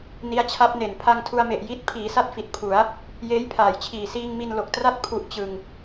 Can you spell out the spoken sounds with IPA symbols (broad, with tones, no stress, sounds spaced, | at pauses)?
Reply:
n i˦˥ a̯ t͡ɕʰ a˦˥ p̚ n e˨˩ n pʰ a˧ ŋ tʰ u˧ a̯ m e˨˩ ʔ j i˦˥ t̚ pʰ iː˩˦ s a˥˩ t̚ f i˨˩ t̚ pʰ u˩˦ a̯ | j eː˦˥ j pʰ aː˩˦ j t͡ɕʰ iː˨˩ s iː˧ ŋ m i˧ n l o˨˩ k̚ t r a˥˩ t̚ pʰ u˦˥ ʔ t͡ɕ ɯ˧ ŋ